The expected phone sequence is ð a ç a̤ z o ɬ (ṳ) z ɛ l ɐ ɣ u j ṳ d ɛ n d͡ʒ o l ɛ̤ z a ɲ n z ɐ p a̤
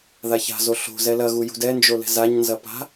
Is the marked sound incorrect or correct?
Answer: incorrect